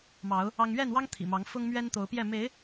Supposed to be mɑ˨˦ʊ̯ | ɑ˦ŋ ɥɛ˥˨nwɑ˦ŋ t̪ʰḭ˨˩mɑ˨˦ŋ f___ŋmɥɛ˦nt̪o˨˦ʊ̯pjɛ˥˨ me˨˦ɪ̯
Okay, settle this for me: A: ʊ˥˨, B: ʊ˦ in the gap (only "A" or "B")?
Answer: B